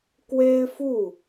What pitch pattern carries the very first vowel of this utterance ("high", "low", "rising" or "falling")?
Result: high